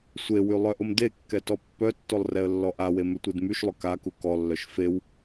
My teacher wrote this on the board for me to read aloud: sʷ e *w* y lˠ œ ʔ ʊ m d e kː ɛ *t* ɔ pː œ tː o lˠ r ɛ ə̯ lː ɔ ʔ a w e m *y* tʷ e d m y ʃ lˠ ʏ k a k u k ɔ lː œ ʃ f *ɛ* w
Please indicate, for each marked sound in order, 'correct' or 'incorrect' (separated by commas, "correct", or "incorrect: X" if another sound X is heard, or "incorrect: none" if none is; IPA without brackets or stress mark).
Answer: correct, correct, incorrect: ʏ, incorrect: e